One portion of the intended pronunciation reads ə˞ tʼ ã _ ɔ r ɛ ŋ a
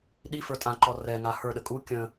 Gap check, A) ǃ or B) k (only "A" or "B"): A